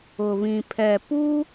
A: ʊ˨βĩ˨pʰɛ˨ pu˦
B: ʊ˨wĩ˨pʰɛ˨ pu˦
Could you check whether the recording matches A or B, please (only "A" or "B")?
A